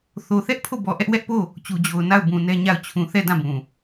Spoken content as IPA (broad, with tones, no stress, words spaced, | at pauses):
θo˨θɛ˦ʔ pʰo˦˨bɔ˨ʔɛ˦ʔ wɛ˦ʔpo˦˨ | t͡ɕu˨d͡ʑo˨ʊ̯ na˦˨ʊ̯bũ˨ nɛ˦ɲa˦˨ʊ̯ t͡ɕʰũ˨θɛ˦˨ dã˦˨bũ˨